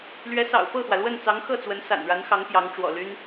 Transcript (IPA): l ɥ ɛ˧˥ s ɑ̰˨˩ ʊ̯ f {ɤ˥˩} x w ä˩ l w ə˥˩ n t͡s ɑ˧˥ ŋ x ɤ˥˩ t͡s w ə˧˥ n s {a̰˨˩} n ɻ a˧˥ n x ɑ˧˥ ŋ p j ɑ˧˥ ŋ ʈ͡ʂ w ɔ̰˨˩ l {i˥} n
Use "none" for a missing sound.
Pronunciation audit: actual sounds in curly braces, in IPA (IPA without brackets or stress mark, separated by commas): ɤ˥˩, a̰˨˩, y˥